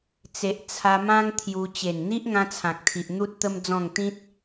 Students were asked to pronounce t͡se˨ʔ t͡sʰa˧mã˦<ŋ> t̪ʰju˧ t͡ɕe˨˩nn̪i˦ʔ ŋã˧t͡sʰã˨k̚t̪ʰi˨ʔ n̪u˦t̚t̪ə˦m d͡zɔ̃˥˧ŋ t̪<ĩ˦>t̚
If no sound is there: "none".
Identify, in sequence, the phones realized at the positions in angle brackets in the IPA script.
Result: ŋ, ĩ˦

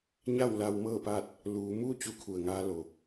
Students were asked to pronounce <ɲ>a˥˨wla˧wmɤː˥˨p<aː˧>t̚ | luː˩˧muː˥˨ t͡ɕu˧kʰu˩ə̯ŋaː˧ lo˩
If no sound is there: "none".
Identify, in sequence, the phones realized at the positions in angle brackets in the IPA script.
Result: ɲ, aː˥˨

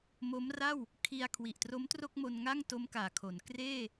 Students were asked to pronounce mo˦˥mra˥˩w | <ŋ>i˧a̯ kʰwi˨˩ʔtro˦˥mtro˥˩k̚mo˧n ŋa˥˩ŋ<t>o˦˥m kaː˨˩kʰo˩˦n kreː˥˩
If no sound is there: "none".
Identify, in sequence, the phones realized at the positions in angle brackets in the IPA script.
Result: kʰ, t

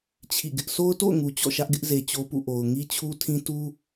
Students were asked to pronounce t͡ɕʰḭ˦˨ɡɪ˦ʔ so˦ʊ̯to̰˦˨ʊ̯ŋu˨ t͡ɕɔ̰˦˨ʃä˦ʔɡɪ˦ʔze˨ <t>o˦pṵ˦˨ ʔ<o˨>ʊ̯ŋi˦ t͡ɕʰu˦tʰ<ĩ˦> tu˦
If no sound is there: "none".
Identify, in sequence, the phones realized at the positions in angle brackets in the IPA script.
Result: t͡ɕ, o˨, ĩ˦

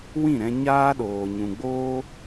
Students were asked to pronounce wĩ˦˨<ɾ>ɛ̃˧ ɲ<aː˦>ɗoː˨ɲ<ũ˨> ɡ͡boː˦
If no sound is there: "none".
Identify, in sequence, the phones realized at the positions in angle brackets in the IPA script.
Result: ɾ, aː˦, ũ˨

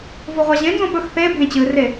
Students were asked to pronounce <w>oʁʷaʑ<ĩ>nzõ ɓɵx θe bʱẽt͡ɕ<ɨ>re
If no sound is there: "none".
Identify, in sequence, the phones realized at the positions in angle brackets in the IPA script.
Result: v, ẽ, ɨ

